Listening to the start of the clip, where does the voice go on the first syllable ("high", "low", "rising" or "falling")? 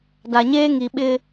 low